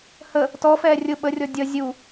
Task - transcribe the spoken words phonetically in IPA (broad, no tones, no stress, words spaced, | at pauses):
hə | tɔfɛː rʲʊ ɓərʲɔ dʲʌ zʲu